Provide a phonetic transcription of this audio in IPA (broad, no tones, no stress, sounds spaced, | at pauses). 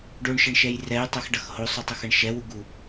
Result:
ɖ o ɳ ʃ ʌ ɳ ʃ ɛ j r ɛ j tˤ o x ɖ ʌ x h o sˤ u tˤ ʌ x ʌ ɳ ʃ ɛ w u ɡ u